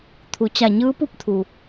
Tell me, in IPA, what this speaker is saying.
t̪ʰ u˩˧ t͡ɕ a˧˩ ɲ ɯː˧˥ p u˧˥ p̚ t̪ʰ u˩

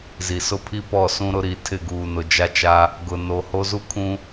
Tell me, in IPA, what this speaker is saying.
z i˨ s ʊ˦ pʰ i˦ p ɔ˦˨ s ũ˦ ɾ ʊ˦ ɾ i˨ tʰ ɪ˦˨ ɡ uː˨ n ʊ˨ d͡ʒ a˦ t͡ʃ a˦ | ɡ ʊ˨ n o˨ h o˦ z u˦ kʰ ũ˦

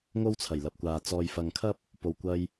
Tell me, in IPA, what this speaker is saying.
ŋ o˥ w t͡sʰ ɐ˨˩ j l ɐ˨ p̚ kʷ aː˨ t͡s ɔː˨ j f ɐ˨ ŋ kʰ ɐ˥ p̚ | p o˨ w kʷ ɐ˧ j

